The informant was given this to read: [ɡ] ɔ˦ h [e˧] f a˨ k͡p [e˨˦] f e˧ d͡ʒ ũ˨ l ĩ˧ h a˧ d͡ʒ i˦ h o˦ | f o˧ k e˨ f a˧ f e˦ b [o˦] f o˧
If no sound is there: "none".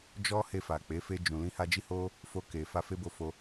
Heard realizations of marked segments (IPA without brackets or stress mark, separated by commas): d͡ʒ, e˧, e˨˦, o˧